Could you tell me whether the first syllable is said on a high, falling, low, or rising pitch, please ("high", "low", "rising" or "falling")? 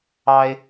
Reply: high